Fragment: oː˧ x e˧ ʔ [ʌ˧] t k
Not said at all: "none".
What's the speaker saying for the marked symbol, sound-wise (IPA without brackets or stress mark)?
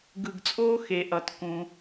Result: ʌ˧